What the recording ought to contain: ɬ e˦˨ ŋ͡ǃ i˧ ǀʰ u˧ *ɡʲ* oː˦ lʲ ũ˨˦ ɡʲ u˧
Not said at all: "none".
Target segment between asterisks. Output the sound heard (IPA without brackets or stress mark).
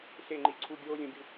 ɡʲ